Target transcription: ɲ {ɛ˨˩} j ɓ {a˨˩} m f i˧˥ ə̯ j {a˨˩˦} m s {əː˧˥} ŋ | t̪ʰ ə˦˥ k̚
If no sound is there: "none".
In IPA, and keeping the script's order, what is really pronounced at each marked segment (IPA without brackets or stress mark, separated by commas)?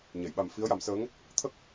ɛ˨˩˨, a˨˩, a˨˩˦, əː˧˥